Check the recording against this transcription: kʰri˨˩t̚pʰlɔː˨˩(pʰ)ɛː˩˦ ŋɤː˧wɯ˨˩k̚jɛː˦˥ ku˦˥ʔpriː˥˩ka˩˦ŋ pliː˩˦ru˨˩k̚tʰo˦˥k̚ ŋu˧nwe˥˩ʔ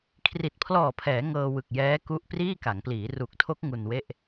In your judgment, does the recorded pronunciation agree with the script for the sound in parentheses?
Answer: yes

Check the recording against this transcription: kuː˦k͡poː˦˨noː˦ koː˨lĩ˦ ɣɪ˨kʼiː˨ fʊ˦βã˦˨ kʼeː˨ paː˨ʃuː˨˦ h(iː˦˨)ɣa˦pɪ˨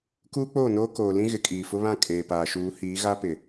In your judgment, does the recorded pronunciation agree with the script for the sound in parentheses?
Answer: no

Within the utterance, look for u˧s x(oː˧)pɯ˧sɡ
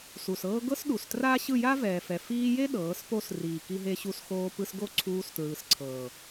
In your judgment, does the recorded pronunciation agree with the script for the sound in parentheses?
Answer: yes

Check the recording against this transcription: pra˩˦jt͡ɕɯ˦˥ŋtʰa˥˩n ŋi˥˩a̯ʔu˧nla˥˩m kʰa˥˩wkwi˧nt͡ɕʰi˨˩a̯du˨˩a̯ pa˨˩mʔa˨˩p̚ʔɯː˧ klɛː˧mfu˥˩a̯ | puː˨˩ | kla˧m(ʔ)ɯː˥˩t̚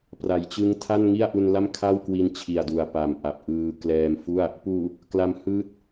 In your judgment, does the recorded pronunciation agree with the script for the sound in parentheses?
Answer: no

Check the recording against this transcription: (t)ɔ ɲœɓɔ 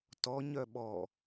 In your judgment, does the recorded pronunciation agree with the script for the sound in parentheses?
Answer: yes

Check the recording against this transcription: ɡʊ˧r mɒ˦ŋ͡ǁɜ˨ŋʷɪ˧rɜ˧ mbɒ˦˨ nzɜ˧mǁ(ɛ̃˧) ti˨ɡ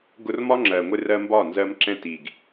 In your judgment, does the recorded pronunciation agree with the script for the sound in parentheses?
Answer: yes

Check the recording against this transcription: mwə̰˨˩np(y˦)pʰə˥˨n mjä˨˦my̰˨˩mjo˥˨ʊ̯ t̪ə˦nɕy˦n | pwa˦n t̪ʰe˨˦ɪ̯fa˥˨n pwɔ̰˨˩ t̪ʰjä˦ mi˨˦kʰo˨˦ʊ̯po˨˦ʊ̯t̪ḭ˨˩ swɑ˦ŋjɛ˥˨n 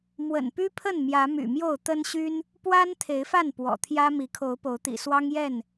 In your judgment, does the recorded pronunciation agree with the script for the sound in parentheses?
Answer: yes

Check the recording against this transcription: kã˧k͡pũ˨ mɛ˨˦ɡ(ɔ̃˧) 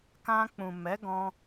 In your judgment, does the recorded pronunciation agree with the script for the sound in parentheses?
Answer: yes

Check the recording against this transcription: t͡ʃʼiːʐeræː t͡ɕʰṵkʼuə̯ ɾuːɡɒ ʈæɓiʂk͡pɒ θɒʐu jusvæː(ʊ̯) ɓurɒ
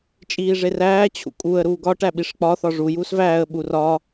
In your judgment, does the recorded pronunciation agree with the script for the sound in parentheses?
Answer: no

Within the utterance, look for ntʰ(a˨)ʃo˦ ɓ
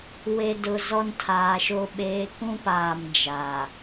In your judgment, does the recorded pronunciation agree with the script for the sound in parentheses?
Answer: no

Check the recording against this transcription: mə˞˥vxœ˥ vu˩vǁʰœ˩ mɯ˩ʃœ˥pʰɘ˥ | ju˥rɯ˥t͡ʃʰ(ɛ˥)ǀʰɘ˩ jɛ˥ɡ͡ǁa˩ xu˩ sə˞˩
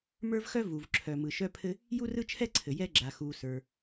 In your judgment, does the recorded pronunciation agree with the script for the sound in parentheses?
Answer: yes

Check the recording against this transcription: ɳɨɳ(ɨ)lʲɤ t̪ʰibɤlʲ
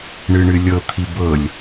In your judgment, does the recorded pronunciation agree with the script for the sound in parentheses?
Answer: yes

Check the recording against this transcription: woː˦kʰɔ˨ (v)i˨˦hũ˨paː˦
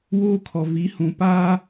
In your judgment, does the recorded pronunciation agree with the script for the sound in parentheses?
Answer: yes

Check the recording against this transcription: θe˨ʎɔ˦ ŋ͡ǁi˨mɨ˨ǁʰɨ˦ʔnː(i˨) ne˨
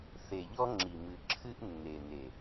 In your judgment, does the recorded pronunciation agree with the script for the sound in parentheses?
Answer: no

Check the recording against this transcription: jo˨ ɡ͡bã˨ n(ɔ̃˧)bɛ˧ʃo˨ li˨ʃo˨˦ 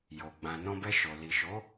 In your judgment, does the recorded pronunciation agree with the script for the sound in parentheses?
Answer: yes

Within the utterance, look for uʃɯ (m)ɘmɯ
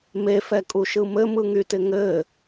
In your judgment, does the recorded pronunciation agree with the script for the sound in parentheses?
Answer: yes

